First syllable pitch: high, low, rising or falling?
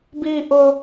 high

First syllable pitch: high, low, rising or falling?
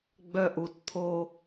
high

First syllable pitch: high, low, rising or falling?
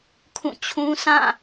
falling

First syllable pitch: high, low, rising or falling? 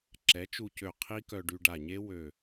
rising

